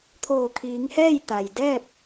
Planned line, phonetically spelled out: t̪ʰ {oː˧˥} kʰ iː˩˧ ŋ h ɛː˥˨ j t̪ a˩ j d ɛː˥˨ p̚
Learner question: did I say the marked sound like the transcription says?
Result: no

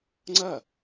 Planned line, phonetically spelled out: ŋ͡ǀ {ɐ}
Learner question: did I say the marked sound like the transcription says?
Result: yes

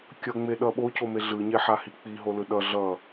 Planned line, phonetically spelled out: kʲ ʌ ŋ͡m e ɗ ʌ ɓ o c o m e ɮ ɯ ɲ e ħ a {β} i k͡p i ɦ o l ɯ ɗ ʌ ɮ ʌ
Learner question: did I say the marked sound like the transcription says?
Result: no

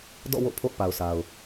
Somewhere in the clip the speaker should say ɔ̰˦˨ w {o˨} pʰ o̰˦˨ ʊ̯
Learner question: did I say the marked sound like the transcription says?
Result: no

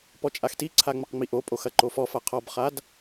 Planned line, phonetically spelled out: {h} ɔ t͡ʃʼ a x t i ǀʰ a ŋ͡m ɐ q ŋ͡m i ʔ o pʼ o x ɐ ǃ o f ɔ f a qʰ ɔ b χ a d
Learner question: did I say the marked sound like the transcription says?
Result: no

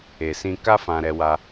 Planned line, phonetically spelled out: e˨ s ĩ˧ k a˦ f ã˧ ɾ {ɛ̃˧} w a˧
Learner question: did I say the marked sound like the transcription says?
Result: no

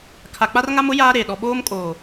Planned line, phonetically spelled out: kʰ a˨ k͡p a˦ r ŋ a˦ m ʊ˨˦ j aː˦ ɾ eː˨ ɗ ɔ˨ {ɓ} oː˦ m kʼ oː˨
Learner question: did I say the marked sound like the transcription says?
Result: yes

